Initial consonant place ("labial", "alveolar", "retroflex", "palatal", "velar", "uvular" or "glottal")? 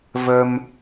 labial